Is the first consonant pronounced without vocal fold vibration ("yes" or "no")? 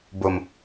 no